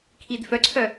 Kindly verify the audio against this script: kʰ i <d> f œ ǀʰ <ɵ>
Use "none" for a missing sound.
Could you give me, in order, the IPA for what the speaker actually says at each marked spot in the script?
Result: d, œ

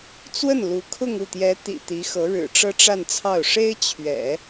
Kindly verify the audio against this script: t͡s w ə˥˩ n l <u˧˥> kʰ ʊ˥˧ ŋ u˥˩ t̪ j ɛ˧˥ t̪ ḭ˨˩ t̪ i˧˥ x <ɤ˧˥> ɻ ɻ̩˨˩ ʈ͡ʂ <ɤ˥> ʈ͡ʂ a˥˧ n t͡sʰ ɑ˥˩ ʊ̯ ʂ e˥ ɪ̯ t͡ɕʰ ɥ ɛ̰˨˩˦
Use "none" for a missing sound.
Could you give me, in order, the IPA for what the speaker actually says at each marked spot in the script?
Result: u˧˥, ɤ˧˥, ɤ˥

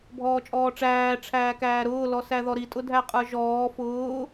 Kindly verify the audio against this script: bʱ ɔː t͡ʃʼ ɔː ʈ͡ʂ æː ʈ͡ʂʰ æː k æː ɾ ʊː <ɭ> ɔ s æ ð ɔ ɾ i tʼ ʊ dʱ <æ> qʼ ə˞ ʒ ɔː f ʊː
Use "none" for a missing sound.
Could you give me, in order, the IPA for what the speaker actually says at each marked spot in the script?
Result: l, æ

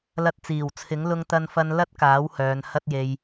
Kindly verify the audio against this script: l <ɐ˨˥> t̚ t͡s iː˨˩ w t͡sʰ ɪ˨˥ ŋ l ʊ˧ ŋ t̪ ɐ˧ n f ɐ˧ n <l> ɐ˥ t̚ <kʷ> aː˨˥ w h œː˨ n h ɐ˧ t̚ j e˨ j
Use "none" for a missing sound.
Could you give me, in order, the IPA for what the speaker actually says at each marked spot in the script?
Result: ɐ˧, l, k

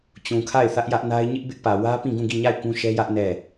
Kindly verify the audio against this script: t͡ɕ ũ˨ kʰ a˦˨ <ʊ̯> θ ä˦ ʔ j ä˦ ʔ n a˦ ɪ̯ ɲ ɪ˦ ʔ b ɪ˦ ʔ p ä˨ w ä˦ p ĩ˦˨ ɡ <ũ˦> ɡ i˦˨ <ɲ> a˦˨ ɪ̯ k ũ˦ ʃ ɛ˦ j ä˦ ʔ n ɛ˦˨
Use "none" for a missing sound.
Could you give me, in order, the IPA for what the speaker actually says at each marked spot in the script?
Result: ɪ̯, ũ˦˨, ɲ

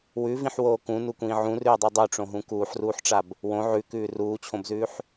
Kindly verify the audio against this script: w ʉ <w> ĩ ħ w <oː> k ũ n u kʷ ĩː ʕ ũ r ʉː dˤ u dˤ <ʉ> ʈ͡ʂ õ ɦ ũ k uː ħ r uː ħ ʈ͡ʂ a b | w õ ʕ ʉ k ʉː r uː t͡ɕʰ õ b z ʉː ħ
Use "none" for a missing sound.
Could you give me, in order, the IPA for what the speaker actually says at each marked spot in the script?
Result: v, oː, ʉ

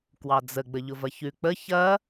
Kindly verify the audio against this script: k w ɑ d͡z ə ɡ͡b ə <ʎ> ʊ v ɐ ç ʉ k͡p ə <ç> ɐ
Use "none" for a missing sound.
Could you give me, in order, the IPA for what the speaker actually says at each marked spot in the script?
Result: ʎ, ç

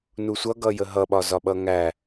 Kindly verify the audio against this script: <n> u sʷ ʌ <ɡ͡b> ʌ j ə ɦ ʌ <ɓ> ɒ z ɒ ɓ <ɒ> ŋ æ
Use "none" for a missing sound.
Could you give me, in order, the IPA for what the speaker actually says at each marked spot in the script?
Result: n, ɡ, ɓ, ʌ

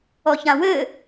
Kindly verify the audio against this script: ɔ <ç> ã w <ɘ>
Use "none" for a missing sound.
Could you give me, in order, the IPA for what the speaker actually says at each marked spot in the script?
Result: ç, ɘ

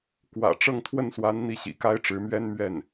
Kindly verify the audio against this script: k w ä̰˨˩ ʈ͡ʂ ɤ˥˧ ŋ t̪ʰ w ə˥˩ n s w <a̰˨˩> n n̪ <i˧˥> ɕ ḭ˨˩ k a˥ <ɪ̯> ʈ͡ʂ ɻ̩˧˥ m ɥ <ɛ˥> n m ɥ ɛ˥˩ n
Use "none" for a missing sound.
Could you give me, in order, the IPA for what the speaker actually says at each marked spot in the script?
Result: a˧˥, i˥˩, ɪ̯, ɛ˥

